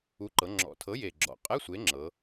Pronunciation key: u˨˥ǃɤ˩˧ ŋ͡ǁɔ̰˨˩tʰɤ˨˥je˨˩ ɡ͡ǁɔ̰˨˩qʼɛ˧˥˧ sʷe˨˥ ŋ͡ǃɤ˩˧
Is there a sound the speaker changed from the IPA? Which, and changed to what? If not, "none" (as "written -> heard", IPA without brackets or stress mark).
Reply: ŋ͡ǃ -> ŋ͡ǁ